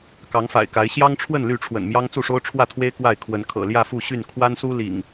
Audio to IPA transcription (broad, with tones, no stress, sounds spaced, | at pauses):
k ɑ˨˦ ŋ f a̰˨˩ ɪ̯ k a˨˦ ɪ̯ ɕ j ɑ˦ ŋ ʈ͡ʂʰ w ə˥˨ n l y˥˨ ʈ͡ʂʰ w ə̰˨˩ n m j ɑ˦ ŋ t͡s u˥˨ ʂ o˦ ʊ̯ ʈ͡ʂʰ w ä˥˨ t̪ʰ w e˦ ɪ̯ k w a˥˨ ɪ̯ kʰ w ə˨˦ n kʰ ɤ̰˨˩ l j ä˥˨ f u˥˨ ɕ y˥˨ n kʰ w a˦ n s u˦ l ḭ˨˩ ŋ